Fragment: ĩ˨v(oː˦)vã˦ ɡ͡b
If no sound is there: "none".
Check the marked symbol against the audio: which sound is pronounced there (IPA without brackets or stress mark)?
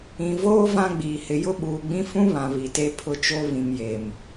oː˦